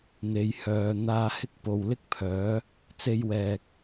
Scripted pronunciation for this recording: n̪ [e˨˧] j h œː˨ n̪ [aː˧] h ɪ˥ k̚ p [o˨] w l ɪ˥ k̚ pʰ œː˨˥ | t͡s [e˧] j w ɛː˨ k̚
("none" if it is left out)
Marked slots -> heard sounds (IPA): e˨˧, aː˧, o˨, e˧

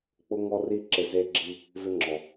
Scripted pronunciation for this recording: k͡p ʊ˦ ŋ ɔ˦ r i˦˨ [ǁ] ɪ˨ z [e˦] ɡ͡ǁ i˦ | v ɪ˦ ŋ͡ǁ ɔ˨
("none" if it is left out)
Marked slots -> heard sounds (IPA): ǁ, e˦

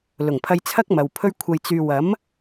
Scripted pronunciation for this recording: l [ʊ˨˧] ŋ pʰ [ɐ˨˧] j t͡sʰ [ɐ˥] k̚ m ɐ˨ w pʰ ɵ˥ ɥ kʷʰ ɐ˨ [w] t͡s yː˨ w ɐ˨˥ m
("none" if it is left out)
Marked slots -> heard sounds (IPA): ʊ˨˩, ɐ˧, ɐ˥, j

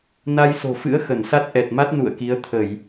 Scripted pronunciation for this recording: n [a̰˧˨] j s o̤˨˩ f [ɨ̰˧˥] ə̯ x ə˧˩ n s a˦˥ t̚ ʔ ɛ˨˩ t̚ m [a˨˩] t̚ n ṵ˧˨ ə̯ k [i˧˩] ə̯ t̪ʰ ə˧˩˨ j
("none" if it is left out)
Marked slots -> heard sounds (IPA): a˧, ɨ̰˧˥, a˦˥, i˨˦

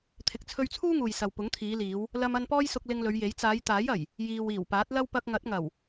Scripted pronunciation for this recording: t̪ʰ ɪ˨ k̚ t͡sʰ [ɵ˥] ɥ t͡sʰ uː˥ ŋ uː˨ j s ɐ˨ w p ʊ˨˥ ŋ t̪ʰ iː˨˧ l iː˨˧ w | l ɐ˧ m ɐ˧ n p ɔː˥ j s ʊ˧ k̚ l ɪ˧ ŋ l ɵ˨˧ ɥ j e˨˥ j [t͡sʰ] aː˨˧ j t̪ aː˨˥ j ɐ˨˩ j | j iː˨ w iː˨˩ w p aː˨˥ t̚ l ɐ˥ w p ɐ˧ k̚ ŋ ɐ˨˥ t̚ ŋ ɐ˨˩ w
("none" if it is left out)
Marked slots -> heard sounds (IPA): ɵ˧, t͡s

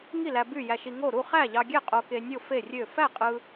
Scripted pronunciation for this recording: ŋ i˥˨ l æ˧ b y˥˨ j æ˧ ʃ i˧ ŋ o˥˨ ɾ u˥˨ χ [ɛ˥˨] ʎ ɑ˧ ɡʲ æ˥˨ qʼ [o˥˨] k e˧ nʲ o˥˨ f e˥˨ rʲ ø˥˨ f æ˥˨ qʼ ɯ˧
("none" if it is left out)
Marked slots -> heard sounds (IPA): æ˥˨, o˧

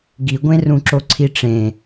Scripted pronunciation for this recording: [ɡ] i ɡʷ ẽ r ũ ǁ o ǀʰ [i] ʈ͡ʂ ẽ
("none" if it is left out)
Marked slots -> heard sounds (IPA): ɡ, i

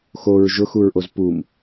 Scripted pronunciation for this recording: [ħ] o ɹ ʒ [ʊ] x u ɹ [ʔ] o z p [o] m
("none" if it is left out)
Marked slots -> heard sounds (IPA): x, ʊ, ʔ, u

